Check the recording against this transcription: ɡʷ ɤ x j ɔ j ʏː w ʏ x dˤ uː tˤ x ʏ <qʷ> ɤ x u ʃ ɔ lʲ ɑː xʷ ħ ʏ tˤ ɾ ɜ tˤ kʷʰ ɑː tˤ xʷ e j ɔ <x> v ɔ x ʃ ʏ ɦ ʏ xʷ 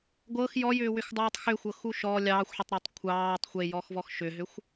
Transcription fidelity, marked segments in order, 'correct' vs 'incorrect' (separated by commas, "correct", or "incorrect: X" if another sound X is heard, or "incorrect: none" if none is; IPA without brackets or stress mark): incorrect: xʷ, correct